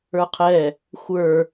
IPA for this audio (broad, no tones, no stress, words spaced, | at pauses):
ə˞qʰɛ | xʷə˞